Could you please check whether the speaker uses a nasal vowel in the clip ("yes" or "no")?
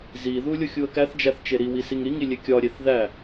no